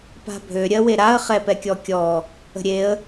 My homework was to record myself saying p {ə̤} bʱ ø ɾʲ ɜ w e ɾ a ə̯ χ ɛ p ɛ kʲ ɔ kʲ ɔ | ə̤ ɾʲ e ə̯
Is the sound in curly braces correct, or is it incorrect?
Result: incorrect